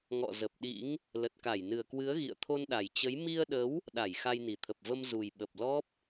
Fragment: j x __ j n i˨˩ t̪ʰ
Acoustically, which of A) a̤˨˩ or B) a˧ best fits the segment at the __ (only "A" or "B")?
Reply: B